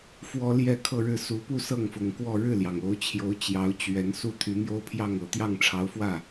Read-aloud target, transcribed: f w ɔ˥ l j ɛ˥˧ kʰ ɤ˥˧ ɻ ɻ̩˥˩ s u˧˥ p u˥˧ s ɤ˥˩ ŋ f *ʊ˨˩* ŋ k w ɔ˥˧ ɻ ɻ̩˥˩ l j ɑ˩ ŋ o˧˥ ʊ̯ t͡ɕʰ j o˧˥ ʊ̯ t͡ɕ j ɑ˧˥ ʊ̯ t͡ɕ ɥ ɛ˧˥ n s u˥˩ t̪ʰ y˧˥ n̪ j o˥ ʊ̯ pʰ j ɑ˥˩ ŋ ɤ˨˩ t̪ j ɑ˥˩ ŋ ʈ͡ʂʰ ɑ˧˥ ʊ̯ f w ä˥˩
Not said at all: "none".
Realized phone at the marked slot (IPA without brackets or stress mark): ʊ˨˩